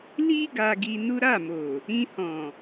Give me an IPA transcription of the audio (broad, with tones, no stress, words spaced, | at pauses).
li˦ ɡa˧ɡi˧nu˦ ɾa˦˨mo˨ | ĩ˧hɔ̃˨